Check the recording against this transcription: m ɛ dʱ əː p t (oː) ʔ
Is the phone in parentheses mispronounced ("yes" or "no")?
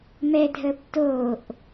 no